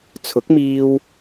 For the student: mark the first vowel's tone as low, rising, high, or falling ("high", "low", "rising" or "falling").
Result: rising